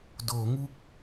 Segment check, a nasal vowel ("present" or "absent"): absent